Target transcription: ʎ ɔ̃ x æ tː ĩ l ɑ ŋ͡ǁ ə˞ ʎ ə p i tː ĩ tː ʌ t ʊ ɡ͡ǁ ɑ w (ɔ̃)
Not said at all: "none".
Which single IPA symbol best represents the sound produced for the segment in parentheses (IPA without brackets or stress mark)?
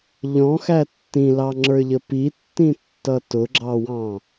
ɑ̃